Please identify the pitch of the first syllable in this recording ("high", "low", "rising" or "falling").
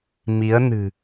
rising